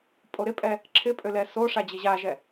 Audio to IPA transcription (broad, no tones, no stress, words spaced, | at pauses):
pʼoɾɪpʼɛ | ǁʰɪpʼø lɛsoʂa d͡ʑɘʑaʒɛ